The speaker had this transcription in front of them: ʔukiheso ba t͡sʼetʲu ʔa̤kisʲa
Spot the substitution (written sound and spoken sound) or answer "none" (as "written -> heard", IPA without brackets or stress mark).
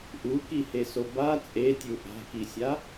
none